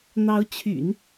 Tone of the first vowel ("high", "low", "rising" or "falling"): rising